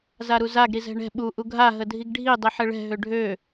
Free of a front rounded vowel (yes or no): no